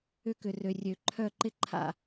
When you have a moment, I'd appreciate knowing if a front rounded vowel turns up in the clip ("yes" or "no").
yes